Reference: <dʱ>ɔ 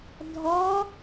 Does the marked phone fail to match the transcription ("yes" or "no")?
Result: no